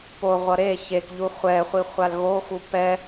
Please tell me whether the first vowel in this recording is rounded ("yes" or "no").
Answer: yes